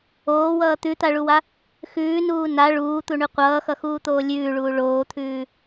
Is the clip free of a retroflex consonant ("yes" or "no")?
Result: no